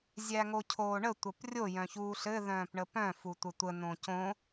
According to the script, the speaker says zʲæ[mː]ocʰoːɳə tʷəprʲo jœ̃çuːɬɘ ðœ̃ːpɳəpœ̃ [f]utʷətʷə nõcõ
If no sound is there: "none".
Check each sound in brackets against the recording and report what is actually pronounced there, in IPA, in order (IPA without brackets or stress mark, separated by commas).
ŋ, f